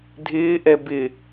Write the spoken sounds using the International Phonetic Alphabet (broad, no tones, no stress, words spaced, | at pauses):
dʱɪːʔɛ bɪ